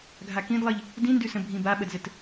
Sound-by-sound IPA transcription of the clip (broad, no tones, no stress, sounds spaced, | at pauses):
ɡʱ a k ĩ d lˠ ɘ ʎ | d ĩ n d ʉ s ə̃ bʱ ĩ b a ɓ ə d z ɘ t